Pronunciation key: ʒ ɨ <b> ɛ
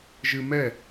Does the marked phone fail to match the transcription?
yes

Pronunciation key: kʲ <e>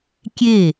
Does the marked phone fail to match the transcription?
no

